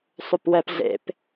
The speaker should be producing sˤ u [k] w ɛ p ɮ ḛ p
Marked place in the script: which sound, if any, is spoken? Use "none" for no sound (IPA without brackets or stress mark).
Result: p